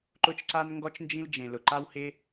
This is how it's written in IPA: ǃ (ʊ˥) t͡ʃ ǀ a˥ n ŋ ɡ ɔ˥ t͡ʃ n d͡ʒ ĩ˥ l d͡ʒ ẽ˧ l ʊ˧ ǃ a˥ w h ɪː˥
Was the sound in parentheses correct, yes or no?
yes